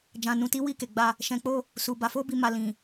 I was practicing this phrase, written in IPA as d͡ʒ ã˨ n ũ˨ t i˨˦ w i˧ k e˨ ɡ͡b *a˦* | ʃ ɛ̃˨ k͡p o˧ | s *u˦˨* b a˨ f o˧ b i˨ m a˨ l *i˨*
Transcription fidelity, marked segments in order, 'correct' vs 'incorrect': incorrect: a˧, incorrect: u˨, incorrect: ĩ˨

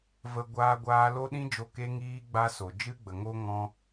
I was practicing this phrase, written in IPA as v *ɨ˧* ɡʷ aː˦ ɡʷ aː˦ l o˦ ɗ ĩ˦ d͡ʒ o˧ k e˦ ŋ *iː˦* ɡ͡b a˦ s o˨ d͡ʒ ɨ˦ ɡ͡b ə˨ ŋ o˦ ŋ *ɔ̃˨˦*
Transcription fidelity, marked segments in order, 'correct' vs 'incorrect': incorrect: ə˧, correct, incorrect: ɔ̃˦

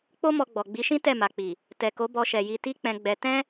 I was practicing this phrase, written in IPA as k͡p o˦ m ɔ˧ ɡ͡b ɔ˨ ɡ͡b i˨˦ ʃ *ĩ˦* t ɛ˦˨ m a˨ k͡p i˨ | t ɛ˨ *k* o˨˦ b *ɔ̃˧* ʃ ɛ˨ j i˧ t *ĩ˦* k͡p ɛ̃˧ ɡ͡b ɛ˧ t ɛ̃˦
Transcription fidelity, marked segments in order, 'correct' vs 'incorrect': correct, correct, incorrect: ɔ˧, incorrect: i˦

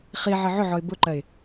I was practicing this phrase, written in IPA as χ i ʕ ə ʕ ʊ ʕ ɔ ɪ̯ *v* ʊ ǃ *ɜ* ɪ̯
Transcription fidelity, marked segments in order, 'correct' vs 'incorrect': incorrect: b, correct

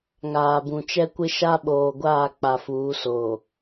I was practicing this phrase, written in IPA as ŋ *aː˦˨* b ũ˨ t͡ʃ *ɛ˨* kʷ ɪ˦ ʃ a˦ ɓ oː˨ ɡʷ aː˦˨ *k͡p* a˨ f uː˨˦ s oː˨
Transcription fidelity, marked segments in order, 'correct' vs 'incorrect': incorrect: aː˨, incorrect: ɛ˦, correct

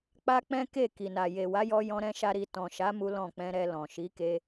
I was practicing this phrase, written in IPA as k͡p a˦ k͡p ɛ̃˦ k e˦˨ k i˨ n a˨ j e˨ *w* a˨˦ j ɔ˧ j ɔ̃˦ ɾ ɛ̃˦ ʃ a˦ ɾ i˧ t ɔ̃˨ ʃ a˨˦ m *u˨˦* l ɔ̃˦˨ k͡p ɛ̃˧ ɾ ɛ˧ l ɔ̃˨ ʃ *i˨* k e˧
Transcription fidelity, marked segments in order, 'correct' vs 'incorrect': correct, incorrect: u˦, incorrect: i˨˦

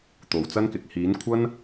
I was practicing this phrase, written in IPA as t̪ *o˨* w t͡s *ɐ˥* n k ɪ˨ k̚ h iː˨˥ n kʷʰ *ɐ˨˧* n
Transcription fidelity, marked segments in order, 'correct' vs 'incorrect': correct, correct, incorrect: ɐ˥

